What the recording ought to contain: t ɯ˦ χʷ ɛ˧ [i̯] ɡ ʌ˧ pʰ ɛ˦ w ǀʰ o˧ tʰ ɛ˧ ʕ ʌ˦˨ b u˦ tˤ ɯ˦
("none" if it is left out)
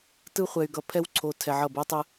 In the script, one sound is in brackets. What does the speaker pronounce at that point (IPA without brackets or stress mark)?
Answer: y̯